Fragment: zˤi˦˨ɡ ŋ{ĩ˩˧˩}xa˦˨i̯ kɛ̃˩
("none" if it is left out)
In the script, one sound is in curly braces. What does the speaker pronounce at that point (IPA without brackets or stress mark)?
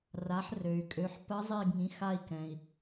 ĩ˩˧˩